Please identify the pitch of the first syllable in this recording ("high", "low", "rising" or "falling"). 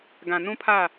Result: low